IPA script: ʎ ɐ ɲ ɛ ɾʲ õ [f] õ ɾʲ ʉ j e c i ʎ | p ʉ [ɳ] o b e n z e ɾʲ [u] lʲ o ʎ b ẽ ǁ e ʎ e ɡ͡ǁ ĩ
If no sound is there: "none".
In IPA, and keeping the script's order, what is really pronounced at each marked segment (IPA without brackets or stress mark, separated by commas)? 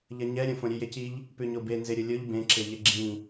f, ɲ, o